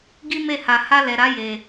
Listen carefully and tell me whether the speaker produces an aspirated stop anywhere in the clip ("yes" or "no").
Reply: no